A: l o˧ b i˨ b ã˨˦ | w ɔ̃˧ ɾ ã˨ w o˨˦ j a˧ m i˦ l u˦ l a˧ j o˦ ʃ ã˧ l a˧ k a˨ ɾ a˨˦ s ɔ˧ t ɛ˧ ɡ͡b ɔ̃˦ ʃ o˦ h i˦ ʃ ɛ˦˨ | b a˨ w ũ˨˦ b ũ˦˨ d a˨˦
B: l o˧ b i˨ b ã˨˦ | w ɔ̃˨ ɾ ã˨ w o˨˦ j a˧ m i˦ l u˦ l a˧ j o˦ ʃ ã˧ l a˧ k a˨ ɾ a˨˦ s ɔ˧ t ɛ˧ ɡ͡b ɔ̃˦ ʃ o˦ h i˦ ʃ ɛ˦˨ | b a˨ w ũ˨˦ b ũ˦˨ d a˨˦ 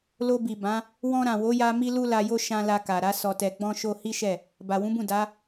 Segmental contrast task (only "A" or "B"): A